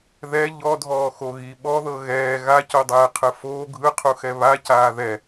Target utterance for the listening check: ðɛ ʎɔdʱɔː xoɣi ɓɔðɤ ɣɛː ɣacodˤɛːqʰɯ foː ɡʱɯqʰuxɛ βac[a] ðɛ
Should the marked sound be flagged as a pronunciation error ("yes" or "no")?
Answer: yes